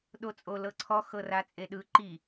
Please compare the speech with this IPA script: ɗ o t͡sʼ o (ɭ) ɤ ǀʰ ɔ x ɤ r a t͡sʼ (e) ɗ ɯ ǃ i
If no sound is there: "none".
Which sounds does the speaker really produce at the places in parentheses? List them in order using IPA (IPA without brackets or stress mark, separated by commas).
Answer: l, e